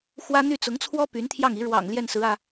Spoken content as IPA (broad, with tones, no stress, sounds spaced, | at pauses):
x w ä˥ n̪ y˥˩ t͡s ʊ˧˥ ŋ t͡sʰ w ɔ˥ p y˧˥ n t̪ʰ j ɑ˥˩ ŋ i˧˥ ɻ w ɑ̰˨˩ ŋ l j ɛ˥˩ n s ɹ̩˧˥ ä˧